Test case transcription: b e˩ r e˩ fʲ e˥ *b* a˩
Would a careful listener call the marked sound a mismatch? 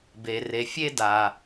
yes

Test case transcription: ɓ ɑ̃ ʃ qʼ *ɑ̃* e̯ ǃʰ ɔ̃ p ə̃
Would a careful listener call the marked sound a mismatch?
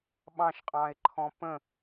no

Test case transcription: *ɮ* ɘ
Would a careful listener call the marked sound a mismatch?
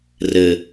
yes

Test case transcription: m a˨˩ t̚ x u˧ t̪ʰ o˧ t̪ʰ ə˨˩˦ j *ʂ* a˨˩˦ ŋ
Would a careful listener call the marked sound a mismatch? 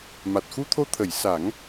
yes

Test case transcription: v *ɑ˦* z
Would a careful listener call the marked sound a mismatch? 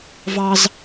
no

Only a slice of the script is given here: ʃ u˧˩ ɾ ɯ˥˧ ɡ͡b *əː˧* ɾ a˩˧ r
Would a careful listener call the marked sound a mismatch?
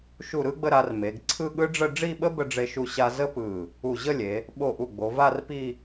yes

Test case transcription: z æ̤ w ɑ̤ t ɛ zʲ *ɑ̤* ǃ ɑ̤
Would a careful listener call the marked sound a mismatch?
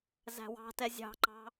no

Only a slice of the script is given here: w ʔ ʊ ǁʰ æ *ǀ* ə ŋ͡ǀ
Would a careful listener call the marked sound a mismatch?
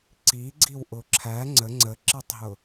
yes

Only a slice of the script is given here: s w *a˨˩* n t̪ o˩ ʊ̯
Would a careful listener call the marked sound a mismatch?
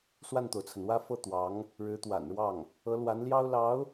yes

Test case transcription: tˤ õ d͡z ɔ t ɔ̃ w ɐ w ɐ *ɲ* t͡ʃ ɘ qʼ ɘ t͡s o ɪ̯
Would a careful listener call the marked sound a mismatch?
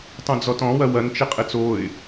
yes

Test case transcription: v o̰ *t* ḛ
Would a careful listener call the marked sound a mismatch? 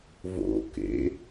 yes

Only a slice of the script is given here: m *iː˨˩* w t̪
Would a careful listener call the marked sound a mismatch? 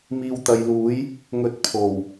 yes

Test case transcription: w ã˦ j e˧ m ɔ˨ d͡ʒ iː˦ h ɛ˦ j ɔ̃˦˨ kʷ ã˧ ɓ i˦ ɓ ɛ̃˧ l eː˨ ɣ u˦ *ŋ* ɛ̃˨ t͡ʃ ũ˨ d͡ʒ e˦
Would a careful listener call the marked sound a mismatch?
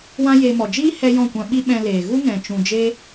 no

